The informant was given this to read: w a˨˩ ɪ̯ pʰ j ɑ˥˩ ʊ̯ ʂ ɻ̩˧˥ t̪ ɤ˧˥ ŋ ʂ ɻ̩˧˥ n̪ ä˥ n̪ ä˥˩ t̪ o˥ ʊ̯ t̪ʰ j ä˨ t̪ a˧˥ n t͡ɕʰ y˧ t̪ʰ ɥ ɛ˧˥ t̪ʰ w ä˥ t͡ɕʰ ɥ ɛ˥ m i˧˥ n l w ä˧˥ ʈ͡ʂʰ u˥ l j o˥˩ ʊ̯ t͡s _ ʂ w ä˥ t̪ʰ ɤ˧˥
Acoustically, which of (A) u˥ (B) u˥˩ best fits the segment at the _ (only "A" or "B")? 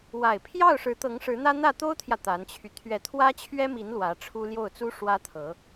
A